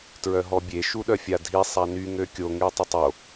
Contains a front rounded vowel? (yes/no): yes